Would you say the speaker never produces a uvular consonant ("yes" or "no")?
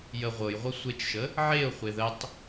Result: no